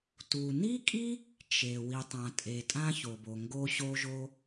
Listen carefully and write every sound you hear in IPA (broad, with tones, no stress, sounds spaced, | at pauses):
t u˩ n i˥ kʼ i˥ | t͡ʃ e˩ w i˩ tˤ ã˩ tʼ e˩ tʼ ã˥ ç o˩ b o˩ ŋ ɡ o˥ ɕ o˥ ʒ o˥